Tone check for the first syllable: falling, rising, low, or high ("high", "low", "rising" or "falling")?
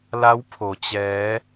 rising